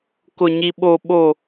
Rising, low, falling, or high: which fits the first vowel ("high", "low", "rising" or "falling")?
low